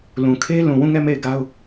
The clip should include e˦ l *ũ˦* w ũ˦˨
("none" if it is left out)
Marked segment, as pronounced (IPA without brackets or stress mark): ũ˨